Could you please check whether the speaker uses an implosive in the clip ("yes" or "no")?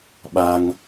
yes